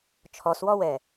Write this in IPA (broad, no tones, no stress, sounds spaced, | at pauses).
t͡ʃʰ ɔ s w ɔ w ɛ